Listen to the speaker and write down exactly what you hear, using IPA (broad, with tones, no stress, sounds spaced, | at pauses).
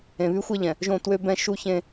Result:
ẽ˨ β y˦ xʷ e˦ ʎ ɛ̃˨ | ʒ õ˦˨ t w ø˦ b ɛ̃˦ ʃ u˦ ç ẽ˦